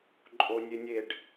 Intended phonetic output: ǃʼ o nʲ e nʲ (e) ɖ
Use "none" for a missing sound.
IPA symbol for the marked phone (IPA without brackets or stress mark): e